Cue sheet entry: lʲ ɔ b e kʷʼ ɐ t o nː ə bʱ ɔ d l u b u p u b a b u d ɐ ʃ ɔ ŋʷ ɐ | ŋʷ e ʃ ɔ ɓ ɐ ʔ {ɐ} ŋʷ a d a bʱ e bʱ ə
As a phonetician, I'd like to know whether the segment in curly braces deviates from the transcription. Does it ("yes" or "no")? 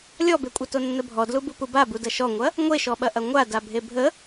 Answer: no